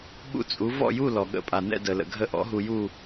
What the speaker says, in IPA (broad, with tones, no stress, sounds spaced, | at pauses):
ɓ ṵ˥˨ t͡sʼ u˩˥ v ɔ̰˥˨ j u˥˨ l ɔ˩ ɠ ə̰˧ pʼ a˩ n ɛ̰˥˨ d ə˩ l ə̰˩ ɡʱ ə˧ ʔ ɔ̰˩˥ ɦ u˧ j u˥˨